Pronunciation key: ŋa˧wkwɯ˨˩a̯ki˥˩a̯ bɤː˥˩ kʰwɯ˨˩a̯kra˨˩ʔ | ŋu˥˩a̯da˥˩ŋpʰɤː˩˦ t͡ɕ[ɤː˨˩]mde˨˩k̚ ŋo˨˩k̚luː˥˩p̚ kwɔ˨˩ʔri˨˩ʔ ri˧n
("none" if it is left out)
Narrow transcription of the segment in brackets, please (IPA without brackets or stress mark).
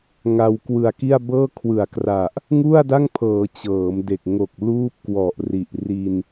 ɤː˩˦